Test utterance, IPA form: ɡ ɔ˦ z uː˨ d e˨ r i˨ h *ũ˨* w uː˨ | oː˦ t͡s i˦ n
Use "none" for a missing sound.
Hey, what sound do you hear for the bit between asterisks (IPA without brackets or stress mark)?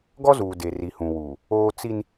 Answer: ũ˨